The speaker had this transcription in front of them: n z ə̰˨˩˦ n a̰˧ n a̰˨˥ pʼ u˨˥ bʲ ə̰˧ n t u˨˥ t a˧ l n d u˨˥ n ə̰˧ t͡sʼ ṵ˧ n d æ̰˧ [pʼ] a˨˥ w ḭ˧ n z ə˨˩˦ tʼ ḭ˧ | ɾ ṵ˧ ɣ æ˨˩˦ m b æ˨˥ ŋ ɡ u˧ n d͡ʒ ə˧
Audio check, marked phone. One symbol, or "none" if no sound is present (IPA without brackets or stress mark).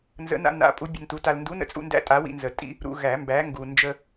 tʼ